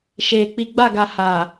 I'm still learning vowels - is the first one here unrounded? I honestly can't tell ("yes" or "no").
yes